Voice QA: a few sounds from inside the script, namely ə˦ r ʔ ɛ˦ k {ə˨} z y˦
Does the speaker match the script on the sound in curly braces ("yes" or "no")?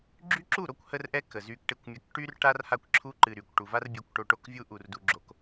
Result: yes